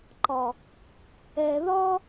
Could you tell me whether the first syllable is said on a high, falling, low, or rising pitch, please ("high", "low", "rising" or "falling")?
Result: low